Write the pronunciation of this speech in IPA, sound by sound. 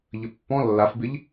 ʎəpːɔ̃ lːafbɪʎ

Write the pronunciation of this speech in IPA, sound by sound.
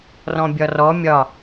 rɔ̃bʲɒrɔ mʲɒ

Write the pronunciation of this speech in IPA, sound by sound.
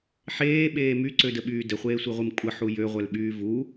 ħeːɓeː myǀødəɓyː dəχʷeːsʷiʁʷim kʷʼəħu jøʁʷœlɓyː vu

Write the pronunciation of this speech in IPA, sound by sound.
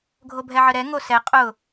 ɡʱobʱɛʕəɾɛ ŋosɛ qʼʊ

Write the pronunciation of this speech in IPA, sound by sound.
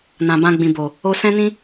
nã˨bã˧ɡ͡bĩ˨ bo˨ | o˦ sɛ̃˦nĩ˦

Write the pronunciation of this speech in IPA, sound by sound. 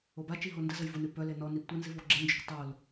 obat͡ʃi ɦondəzəj vʊnʉ pœle nɔnib tʷənziv ɔɡ͡ǁend͡ʒʊk tˤol

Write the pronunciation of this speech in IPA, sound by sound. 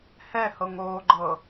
hɛhɤŋoːɡ͡ǃɤ

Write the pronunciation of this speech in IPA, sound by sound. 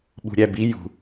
ɓṳɾʲæbi jṳ

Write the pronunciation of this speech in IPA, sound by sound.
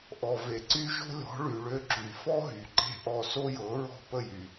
ʔɔ˩ve˩ǀy˧ ʒo̤˥lʲɔ̤˩˥ɭy˩ ɭø˧ǁy˩fɔ˥ɦy˩ ǃe̤˥˩ʔɔ˥˩ so˥jɤ˩˥ ɹɔ̤˥˩pə˥˩jy˩

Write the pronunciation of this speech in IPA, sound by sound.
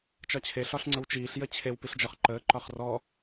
t͡ʃɒt͡ɕʰe ɬɒɬŋ͡ǀəwt͡ʃiːɬ jət͡ɕʰew piɬd͡ʒɒχǃəː ǃɒχrɔ

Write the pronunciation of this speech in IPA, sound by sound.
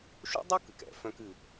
ʃṵ˥dˤɨ˥ kɨ˩kɛ̰˩˧ fœ̃˥kɨ˧

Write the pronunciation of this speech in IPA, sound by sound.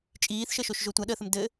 t͡ʃʼiːθʃəʃoʃ ʒotʷaɗəːθəm dɘ

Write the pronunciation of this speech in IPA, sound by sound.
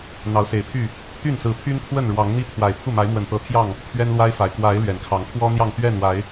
n̪ɑ˨˦ʊ̯se˨˩ɪ̯pʰy˥˨ | t̪y˥˨nsɹ̩˨˦pʰy˦nkʰwə˥˨n ɻwɑ˨˦ŋn̪i˦t̪ʰwa˨˩ɪ̯ pʰu˥˨ ma˨˦ɪ̯mwə˨˩nt̪ɤ˨˦ t̪ʰjɑ˥˨ŋ | t̪ʰɥɛ˦nlwa˦ɪ̯fa˨˩ɪ̯ kwa˨˦ɪ̯ lɥɛ˨˩nkʰɑ˨˦ŋt̪ʰwɔ˦ n̪jɑ˥˨ŋt̪ɥɛ˥˨nwa˨˦ɪ̯

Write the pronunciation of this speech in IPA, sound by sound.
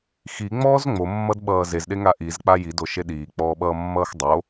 xiŋ͡mɔːz ŋ͡momːʌdɓʌː zezɗeŋa ʔizk͡pa jidoʃe ɗiːk͡pɔːɓʌːmːʌːx dˤo

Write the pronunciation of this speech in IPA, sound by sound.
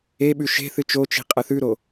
eɓʉ ʃe̤θɨ t͡ʃot͡ʃi̤ qʼɐθʉɾo

